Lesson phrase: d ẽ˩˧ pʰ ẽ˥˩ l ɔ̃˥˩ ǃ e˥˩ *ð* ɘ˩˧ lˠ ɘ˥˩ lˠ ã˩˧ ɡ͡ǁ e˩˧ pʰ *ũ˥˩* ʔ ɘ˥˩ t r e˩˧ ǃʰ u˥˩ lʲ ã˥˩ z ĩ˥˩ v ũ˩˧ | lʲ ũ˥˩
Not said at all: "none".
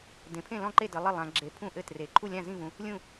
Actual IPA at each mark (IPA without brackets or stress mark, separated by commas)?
d, ũ˥˩